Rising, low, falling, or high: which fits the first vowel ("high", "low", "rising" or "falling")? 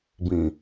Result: low